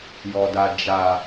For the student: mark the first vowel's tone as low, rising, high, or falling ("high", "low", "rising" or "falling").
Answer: low